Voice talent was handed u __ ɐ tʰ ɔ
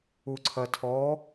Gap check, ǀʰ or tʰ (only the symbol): ǀʰ